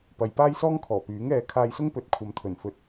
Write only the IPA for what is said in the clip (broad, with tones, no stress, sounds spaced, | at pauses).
p ɐ˨ j p aː˥ j s ɔː˥ ŋ kʰ ɔː˨˩ p yː˨˥ ŋ ɛː˧ kʰ aː˧ j s ʊ˥ ŋ p ɵ˨˥ t̚ kʷʰ ɐ˨ m t̪ʰ ɵ˨˩ n f ɵ˨ t̚